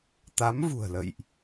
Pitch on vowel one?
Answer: rising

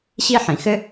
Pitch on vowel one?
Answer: high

